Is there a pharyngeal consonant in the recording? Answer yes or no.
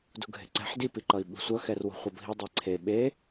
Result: yes